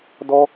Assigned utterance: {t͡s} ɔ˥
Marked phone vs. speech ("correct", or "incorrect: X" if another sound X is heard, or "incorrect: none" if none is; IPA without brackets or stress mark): incorrect: d